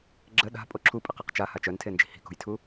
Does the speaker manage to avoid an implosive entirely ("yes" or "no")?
no